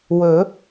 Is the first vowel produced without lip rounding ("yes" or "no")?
no